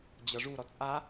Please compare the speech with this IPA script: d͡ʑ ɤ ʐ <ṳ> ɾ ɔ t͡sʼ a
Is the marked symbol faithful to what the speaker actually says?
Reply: no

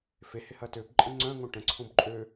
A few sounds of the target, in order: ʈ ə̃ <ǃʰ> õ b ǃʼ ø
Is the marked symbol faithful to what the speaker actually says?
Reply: no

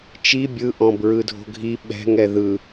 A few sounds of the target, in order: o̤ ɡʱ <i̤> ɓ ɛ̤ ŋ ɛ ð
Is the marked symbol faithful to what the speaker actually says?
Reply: no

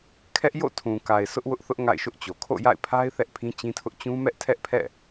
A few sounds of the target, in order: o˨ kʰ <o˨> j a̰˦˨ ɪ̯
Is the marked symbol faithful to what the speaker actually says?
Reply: no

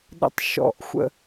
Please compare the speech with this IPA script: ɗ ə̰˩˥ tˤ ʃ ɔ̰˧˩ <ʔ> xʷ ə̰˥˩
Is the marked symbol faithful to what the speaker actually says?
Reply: yes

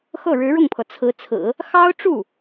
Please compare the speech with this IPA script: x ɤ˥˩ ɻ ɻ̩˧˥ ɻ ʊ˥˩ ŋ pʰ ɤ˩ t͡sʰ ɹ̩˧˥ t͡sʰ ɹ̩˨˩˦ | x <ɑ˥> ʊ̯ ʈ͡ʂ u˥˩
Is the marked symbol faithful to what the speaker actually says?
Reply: yes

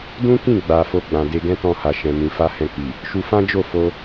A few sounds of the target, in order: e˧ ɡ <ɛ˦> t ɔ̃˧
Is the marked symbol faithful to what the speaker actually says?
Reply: no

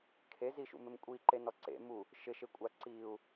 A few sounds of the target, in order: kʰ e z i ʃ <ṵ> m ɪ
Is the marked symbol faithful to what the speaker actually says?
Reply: yes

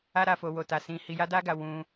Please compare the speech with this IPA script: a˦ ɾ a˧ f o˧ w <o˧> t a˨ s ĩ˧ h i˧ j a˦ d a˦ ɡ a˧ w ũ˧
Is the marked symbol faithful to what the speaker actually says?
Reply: no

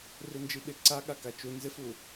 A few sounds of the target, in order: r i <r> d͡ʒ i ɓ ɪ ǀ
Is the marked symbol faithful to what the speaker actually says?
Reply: no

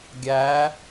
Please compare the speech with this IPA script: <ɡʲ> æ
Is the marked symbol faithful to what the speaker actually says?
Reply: yes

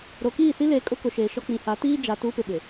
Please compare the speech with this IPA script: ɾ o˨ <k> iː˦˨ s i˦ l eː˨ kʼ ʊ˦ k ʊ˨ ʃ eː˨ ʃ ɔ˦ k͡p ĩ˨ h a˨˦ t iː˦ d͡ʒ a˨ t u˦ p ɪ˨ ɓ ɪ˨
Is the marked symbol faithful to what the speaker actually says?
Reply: yes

